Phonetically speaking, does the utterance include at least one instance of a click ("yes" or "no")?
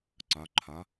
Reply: yes